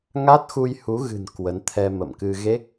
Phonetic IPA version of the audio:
ŋ a˦˥ t̚ x u˧ j h u˨˦ ɣ ɨ̤˨˩ n k w ə˨˦ n t̪ʰ ɛ˧ m ə̰˧˨ m k ɨ˧ ɣ e˦˥ k̚

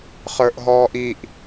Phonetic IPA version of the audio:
χ ə˞ ʔ ɦ ɔː ʔ i ʔ

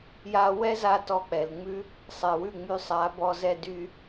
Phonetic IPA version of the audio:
j a˧ w ɛ˦ z a˧ t ɔ˧ k͡p ɛ˨ l ŋ͡m ʉ˦ | sˤ ɛ˨ w ʉ˦˨ ŋ͡m y˧ sˤ a˨˦ b ɔ˧ z ɛ˧ d y˦

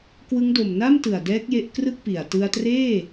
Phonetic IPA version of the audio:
k w ɯ˦˥ ŋ d o˨˩ m n a˥˩ m t ɯ˨˩ a̯ d ɛː˦˥ k̚ j e˦˥ ʔ k r ɯ˥˩ k̚ p i˨˩ a̯ t ɯ˧ a̯ t r eː˥˩

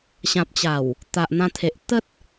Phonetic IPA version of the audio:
ɕ ã˨ p̚ t͡ɕ a˨˩ w | t̪ a˨ ʔ n̪ ã˧ t̪ʰ e˨ ʔ t̪ ə˦ t̚

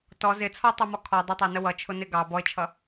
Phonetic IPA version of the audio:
t ɔ z ɪ t͡sʰ ɔ tˤ ɑ m ɔ kʰ ɔ dˤ ʌ tˤ æ n ə w ʌ t͡ʃʰ ʊ n ɪ ɡ ɑ b ɔ ɪ̯ t͡ʃʰ ʌ

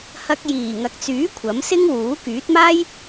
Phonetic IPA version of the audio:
h ɐ˧ k̚ j iː˨˩ ŋ ɐ˨ k̚ t͡s yː˨˥ kʷʰ ɐ˨˥ m s ɪ˥ ŋ w uː˨˥ k yː˨˥ t̚ m aː˥ j

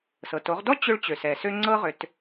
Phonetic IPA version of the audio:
s ɤ˩ t o˩˧ ʁ d ɔ˥ t͡ɕ ʏ˧ ɭ t͡ɕ ø˩ s ɛ˩ s ø˥ ŋ͡ǀ ɤ˥ ʁ ʏ˩˧ t

